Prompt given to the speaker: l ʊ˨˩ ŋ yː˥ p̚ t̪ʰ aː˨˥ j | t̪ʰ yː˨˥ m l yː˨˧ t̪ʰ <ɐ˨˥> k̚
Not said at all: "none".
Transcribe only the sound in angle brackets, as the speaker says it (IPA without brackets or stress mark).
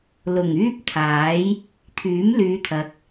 ɐ˨˥